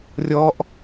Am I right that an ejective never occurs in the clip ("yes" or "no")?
yes